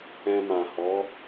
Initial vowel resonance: nasal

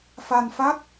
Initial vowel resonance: oral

